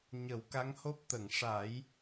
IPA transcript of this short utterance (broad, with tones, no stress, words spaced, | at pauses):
ɲə˨˩˦wka˧˥ŋho˦˥p̚ t̪ə˨˩˨ŋʂa˨˩˦j